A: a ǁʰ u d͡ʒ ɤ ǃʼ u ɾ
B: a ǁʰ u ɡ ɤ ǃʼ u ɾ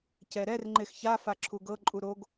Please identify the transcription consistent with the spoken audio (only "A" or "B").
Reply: B